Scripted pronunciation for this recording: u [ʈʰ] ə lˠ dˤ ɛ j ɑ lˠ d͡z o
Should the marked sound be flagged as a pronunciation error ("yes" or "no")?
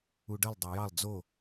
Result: yes